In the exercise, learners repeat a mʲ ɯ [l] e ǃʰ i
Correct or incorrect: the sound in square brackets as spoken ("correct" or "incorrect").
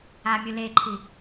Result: correct